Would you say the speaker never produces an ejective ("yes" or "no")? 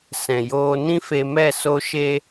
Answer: yes